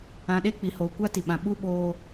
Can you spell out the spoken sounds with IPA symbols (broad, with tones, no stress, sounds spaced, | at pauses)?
ã˨ ɗ e˦ k͡p i˨ h oː˨ kʷ a˦ t i˨ ɓ ã˨ ɓ u˦ ɓ oː˨